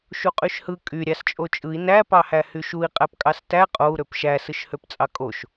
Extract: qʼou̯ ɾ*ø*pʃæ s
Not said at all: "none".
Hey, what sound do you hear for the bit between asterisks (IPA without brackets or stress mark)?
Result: ø